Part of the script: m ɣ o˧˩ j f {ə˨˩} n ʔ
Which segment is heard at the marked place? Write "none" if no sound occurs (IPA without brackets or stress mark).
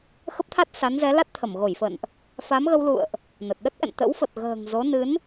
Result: ə̰˧˨